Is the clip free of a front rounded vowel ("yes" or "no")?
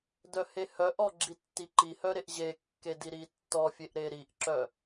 no